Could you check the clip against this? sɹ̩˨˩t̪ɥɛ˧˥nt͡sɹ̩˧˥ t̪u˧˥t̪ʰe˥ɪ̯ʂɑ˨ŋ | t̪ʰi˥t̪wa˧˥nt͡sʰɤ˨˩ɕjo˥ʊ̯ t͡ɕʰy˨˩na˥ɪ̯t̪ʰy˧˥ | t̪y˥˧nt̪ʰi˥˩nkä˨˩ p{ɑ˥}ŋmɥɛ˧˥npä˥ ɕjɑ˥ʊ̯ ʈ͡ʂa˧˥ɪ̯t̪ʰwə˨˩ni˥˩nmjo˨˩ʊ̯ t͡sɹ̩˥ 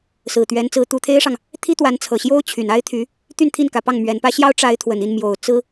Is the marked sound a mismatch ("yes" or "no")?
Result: yes